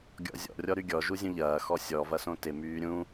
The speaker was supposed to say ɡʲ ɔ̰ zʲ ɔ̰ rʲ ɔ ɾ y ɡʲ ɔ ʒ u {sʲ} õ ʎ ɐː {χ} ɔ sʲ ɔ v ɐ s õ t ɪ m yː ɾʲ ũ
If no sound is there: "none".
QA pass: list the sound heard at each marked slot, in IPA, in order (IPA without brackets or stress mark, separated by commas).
zʲ, x